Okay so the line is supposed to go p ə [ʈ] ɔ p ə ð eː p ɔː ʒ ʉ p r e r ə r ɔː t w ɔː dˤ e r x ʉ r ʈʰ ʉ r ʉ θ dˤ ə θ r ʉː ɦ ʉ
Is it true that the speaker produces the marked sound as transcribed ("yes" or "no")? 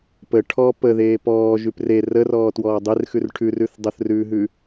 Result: no